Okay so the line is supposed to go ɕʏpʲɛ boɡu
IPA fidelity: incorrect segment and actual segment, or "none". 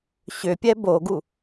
none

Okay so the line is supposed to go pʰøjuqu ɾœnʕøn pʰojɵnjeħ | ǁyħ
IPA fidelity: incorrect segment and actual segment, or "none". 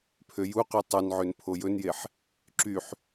ɾ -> tˤ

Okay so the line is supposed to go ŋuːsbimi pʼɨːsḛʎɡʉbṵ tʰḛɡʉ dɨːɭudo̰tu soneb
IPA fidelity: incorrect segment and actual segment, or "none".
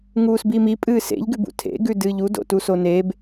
ɭ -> ʎ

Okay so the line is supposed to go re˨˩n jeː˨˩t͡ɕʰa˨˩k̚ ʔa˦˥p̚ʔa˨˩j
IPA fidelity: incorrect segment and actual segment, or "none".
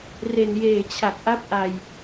none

